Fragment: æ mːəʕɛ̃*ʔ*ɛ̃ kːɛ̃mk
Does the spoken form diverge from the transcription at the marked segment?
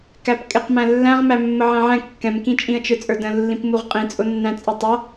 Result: yes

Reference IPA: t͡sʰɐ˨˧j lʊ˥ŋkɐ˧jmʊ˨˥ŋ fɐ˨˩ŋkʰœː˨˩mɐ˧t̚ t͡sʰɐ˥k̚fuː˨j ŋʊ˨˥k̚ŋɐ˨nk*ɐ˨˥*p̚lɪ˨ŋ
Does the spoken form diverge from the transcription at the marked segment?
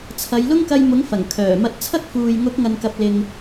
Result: yes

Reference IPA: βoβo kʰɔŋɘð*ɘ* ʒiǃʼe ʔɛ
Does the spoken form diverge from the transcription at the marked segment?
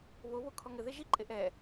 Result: yes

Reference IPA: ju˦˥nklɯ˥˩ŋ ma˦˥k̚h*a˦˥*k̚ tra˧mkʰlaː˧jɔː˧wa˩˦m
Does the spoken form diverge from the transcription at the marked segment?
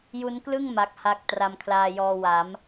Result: yes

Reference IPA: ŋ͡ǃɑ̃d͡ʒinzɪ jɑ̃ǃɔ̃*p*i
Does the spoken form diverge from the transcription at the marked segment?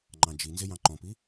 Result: no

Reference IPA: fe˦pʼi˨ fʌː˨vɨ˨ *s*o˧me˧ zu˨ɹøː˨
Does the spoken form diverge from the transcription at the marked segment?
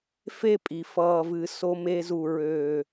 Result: no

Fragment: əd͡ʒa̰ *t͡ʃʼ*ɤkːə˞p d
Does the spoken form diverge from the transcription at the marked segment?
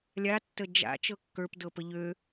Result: yes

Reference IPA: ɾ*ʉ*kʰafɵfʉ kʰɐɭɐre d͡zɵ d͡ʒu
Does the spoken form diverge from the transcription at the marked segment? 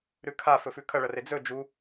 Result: no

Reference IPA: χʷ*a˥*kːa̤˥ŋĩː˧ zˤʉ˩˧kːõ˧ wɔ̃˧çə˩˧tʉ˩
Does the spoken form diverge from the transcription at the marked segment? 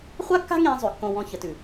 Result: no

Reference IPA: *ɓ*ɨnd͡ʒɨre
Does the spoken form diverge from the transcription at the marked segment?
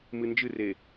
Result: yes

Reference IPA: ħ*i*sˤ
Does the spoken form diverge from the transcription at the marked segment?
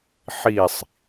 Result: no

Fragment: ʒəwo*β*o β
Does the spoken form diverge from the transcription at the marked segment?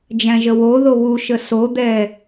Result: yes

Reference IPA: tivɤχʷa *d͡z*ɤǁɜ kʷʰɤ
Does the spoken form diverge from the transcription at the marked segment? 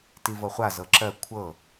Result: yes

